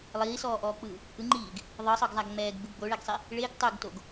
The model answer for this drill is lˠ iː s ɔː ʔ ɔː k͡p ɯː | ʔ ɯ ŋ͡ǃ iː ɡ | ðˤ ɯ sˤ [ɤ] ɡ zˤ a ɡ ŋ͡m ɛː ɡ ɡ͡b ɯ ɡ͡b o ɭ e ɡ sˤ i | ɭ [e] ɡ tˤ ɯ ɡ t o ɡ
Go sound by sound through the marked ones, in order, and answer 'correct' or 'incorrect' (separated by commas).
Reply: correct, correct